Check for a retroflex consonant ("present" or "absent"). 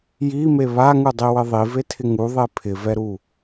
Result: absent